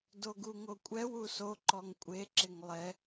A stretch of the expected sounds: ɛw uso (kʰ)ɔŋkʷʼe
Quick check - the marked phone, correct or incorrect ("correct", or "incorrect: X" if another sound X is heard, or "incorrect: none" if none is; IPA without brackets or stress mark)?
incorrect: ǃ